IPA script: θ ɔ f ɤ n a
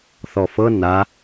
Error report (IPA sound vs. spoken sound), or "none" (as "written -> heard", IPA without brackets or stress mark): none